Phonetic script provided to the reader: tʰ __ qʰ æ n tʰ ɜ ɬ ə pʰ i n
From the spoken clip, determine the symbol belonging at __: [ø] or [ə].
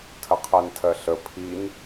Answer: ə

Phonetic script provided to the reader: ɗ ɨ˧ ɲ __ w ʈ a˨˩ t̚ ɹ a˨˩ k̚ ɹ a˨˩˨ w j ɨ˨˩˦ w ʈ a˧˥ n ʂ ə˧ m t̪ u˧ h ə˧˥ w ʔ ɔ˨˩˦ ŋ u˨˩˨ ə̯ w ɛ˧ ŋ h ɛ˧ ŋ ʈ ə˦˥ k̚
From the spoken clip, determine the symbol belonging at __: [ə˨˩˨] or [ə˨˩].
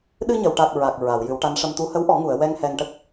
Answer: ə˨˩˨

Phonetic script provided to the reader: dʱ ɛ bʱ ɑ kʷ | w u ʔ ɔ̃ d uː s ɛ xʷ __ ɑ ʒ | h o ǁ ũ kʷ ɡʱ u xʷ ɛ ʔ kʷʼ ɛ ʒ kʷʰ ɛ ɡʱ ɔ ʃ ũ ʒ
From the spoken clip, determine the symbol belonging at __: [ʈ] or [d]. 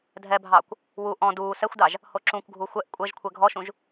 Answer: d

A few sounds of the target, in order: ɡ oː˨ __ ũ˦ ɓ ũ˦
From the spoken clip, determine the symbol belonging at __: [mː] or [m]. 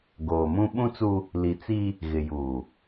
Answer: m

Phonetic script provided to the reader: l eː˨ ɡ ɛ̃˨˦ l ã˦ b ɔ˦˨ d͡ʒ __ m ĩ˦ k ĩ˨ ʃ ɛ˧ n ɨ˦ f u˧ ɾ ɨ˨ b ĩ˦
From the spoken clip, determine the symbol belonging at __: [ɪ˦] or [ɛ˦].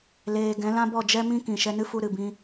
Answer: ɛ˦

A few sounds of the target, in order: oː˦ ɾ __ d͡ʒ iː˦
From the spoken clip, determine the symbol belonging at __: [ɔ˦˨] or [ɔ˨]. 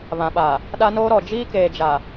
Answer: ɔ˨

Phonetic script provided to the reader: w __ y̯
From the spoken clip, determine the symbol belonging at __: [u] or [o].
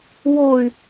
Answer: o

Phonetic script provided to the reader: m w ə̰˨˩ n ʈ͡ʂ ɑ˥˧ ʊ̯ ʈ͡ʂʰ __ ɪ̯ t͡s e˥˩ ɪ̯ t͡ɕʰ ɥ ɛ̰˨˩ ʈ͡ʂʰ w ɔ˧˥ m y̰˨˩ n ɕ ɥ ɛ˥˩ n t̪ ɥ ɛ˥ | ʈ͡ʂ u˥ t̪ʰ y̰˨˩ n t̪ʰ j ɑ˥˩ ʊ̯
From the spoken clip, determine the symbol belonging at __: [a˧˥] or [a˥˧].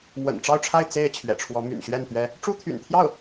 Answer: a˥˧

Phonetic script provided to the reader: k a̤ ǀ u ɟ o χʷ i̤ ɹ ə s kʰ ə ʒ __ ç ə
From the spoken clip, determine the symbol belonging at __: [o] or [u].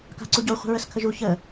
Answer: u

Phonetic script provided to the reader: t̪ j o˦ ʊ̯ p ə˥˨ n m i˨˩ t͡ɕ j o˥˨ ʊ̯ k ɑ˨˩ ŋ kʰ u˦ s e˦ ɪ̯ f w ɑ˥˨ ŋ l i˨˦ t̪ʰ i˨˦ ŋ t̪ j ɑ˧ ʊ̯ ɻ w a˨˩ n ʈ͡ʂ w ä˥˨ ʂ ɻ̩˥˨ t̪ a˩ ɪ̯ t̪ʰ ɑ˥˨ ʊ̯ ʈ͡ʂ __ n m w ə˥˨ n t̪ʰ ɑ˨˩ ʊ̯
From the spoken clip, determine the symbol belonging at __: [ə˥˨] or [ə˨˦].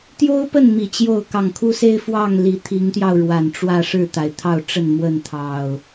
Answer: ə˥˨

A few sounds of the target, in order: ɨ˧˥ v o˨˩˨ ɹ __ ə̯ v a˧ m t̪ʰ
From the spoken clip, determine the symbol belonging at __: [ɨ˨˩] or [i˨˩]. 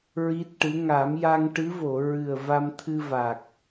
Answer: ɨ˨˩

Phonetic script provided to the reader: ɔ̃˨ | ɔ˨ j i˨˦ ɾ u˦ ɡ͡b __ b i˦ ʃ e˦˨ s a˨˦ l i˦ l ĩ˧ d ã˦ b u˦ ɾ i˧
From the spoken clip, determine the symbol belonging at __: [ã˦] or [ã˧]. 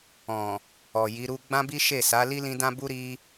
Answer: ã˦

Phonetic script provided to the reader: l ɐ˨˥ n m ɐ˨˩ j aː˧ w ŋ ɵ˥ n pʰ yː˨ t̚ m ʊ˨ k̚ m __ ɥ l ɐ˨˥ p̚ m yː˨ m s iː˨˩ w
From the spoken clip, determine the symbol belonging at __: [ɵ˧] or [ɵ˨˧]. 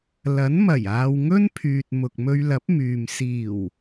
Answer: ɵ˧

